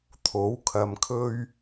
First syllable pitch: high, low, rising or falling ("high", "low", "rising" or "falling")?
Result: rising